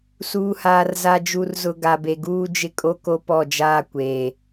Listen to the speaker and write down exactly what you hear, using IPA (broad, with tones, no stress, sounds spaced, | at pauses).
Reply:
s uː˨ h aː˨ r z a˨ d͡ʒ u˨ r z ʊ˨ ɡ a˨ b e˨ ɡ uː˦ d͡ʒ ɪ˦ kʼ o˦ k o˦ p ɔ˦˨ d͡ʒ aː˦ kʷ eː˨